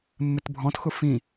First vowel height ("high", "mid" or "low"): high